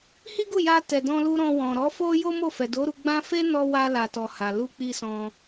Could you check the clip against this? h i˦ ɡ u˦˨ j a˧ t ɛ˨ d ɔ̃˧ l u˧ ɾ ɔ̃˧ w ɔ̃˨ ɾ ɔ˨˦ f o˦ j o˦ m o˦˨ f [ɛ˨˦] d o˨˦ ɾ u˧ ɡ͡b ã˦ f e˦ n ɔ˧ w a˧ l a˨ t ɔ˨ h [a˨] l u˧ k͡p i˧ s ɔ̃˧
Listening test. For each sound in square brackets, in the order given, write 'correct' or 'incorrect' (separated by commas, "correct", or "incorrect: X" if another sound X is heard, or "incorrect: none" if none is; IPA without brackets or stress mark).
incorrect: ɛ˨, correct